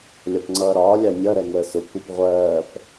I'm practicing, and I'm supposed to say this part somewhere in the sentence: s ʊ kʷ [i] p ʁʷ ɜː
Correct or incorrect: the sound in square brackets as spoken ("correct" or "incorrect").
incorrect